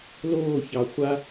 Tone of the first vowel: falling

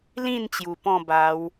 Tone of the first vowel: falling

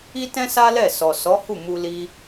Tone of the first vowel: high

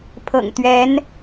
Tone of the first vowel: low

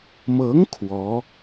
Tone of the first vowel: rising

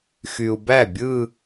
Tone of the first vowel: low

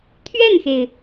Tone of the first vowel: falling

